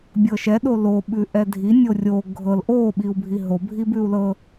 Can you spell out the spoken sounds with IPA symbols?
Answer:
bʲ ɤ ʃ ɛ ɗ o l o ɓ ʉ ʔ ɛ dʱ i nʲ o rʲ o ɡʱ ɤ l ʔ o ɓ i u̯ bʱ i ɦ o bʱ i b ʉ u̯ l ɤ

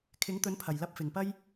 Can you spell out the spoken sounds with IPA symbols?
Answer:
kʰ ɪ˨˥ ŋ t̪ ɵ˨˥ n pʰ ɐ˨˩ j l ɐ˧ p̚ f ɪ˨˩ ŋ p ɐ˥ j

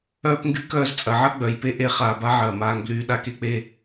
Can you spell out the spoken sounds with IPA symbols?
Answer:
œː˦ p ŋ ɡ y˦ k œː˧ z t͡sʼ ɐ˨ ʕ ɐ˦ ɡ͡b œ˨ j p e˦ ʔ e˧ χ aː˨ b a˧ ʕ ɐː˨ m aː˧ ŋ b l yː˧ ɗ a˧ k e˧ k͡p e˧

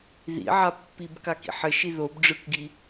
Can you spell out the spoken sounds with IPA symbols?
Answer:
ð ḭ ʕ a pː i b k a k ḭ ħ ɘ ʃ i ð o b ɖ͡ʐ ɯ k ɡ i

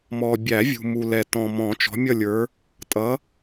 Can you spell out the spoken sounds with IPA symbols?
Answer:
m ɔ˨ bʲ æ˨˩˦ vʲ ṳ˨ m u˨ l ɛ˨ t ɔ̃˨ m ɔ̃˨˩˦ t͡ʃ ɔ̤˨˦ mʲ ʌ˦˨ lʲ ə˞˨˦ | tʼ ʌ˨˦

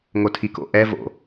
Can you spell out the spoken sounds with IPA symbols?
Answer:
ŋ o tʰ i k o̰ ʔ ɛ v o̰

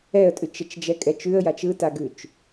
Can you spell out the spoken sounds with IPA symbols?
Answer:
ɛ ə̯ tʼ ʉ t͡ʃ ə t͡ʃ d͡ʒ ɛ kʼ ɛ t͡ʃ ʉ ə̯ j a t͡ʃ ɯ t a ɡ ʉ t͡ʃ

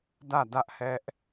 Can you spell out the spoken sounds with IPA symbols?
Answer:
d ä˦˨ d ä˦ ʔ h ɛ˦ ʔ

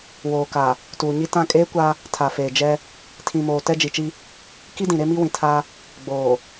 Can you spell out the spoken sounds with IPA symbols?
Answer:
w oː˨ k a˨ | t uː˨ ɲ i˦ t ã˦˨ kʼ eː˦ kʷ a˦ | tʰ a˨ f eː˨ d͡ʒ ɛ˦ | tʰ ĩ˨ m oː˨ t ɛ˦ d͡ʒ i˨ t͡ʃ i˦ | k i˦ d ĩ˨ ɾ e˦ m i˦ w ĩ˨ tʰ a˦ | ɡ͡b oː˨

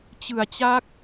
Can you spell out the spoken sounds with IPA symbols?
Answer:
t͡ɕ ɯ˩˦ a̯ t͡ɕ a˦˥ k̚

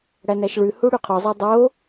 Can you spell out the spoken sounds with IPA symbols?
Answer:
ɽ æ n æ ʃ ɭ ʉ h u ɽ ʉ qʰ ɔ zˤ e dˤ o

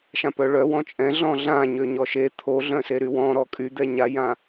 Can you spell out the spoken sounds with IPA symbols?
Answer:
ʃ ã p œ ɭ œ w ɔ̃ t͡ʃʼ ɛ̃ ɮ ɔ̃ ɮ ã ɲ ø ɲ ɔ ʃ e t̪ʰ o ɮ œ̃ s e ɾ y w ɔ̃ ɾ ɔ kʼ y d̪ ɛ ɲ a j ã

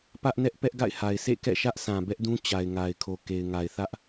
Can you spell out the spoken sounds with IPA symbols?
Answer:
p ä˦ ʔ n ɛ˦ ʔ p ɛ˦ ʔ ɡ a̰˦˨ ɪ̯ h a˨ ɪ̯ s ḛ˦˨ k ɛ̰˦˨ ʃ ä˦ ʔ sʰ ã˨ b ɛ˦ ʔ d ũ˦ t͡ɕ a˨ ɪ̯ ŋ a˨ ɪ̯ kʰ o˨ k e˨ ɪ̯ ŋ a˨ ɪ̯ θ ä˦ ʔ

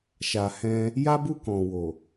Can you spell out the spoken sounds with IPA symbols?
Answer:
ʃ a˨ h ɛ̃˧ | j a˦ b u˦˨ k ɔ̃˨ w o˨

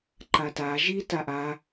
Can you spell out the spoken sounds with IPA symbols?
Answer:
ǃ a t a ʒ i t a ʔ a

